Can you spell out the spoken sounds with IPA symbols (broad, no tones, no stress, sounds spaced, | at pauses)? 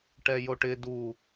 ʈ ɛ j o ʈ ɪ d u